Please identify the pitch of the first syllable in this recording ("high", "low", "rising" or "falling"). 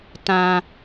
low